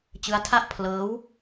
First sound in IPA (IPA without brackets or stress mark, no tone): t͡ɕ